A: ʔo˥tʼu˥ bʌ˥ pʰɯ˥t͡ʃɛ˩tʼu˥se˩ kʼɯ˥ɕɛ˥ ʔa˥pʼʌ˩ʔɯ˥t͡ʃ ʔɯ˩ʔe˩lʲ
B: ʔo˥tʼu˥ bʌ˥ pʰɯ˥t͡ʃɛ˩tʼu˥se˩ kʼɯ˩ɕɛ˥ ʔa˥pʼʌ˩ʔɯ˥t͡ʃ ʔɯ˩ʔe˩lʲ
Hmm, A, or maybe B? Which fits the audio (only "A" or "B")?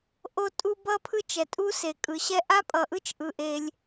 B